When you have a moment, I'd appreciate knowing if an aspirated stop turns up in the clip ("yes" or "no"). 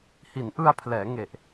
yes